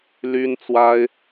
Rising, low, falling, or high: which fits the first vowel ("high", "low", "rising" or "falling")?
high